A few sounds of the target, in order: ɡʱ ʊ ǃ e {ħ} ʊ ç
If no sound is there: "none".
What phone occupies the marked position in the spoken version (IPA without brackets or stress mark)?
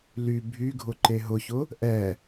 ɦ